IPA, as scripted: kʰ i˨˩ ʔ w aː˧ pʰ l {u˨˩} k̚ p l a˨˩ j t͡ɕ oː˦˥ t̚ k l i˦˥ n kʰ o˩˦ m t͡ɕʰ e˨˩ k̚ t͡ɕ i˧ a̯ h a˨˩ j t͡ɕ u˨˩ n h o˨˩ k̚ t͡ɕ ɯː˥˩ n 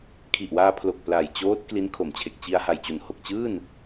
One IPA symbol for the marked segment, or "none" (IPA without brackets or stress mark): o˨˩